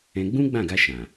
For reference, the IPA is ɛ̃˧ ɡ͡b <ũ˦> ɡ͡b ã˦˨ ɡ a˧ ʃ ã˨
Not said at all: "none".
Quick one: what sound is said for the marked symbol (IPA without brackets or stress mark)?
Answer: ũ˦